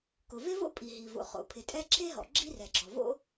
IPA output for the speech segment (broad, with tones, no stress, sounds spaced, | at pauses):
k ʊ˩ v e˥ v o̰˥ pʼ i˩ ɦ i˩ v o̰˩ χ o̰˩ pʰ ɪ˩ tʼ ɛ˥ ǁʰ e˥ ɦ ɔ̰˩ ɡ͡ǁ i˥ r ɛ˩ ɡ͡ǁ ɔ˩ v o̰˥